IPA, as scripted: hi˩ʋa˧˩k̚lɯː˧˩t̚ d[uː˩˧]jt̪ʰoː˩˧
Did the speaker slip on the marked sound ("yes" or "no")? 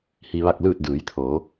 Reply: yes